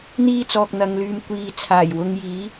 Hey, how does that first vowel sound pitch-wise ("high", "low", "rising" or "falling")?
high